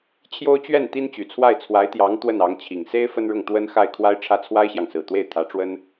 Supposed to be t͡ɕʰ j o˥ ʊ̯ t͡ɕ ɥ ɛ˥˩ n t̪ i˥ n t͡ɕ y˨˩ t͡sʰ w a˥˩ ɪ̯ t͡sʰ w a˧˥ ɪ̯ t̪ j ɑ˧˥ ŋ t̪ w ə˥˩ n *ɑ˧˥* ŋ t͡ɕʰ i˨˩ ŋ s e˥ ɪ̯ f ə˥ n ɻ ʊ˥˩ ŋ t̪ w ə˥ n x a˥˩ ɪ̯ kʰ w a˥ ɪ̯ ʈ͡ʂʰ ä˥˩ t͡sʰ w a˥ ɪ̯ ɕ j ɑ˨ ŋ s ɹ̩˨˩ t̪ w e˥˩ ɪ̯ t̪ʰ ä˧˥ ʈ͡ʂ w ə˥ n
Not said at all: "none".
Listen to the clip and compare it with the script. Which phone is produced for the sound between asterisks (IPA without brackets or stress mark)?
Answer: ɑ˧˥